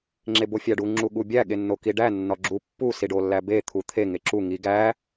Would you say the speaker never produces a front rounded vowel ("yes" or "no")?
yes